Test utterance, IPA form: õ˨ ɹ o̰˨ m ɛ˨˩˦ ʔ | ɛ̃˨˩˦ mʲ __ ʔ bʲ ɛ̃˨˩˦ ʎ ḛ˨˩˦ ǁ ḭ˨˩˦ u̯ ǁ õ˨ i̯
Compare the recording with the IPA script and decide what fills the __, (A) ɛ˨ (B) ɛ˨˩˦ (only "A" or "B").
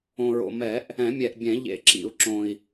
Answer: A